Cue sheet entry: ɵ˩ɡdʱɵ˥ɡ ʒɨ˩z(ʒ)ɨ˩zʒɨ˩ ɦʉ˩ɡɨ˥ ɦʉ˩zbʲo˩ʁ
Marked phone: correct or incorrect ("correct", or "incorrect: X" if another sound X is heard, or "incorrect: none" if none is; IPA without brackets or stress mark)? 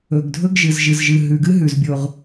correct